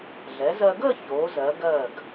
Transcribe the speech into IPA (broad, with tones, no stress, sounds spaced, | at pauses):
ɮ ɛ˩˧ z ɜ˧ ɡ əː˥˧ ç oː˩˧ z ɜ˩˧ ɡ ɜː˧˩ ɡ